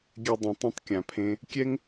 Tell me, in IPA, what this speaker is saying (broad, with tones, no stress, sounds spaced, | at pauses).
ɡʲ ɛ˧ dˤ ũ˨ tˤ ĩ˧ tˤ kʲ ã˧ pʰ ẽ˦ | kʲ ɛ˦ ŋ